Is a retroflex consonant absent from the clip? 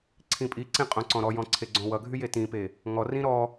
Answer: yes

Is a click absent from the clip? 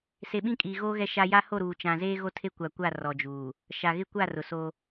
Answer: yes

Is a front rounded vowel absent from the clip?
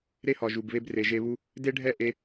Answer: yes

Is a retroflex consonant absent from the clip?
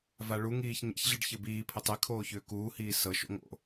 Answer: no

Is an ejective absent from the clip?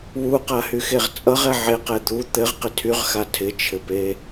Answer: no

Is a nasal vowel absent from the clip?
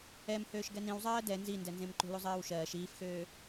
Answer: no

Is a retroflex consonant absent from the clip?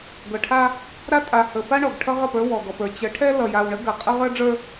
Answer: no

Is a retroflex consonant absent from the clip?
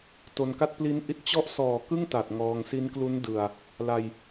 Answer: yes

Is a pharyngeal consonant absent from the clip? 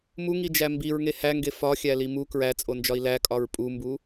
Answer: yes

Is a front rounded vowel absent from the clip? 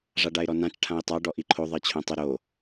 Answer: yes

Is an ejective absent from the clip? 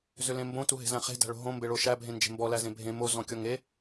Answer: yes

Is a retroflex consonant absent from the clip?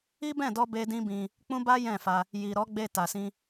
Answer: yes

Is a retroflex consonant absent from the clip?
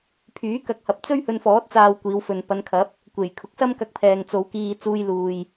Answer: yes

